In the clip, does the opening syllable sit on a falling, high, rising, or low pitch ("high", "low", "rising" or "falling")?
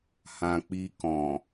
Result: low